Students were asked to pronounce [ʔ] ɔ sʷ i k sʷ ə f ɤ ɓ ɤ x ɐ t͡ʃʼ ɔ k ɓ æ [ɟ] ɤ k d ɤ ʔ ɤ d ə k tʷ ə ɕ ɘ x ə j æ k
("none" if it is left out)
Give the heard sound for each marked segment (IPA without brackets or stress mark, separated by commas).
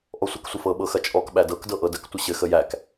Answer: ʔ, d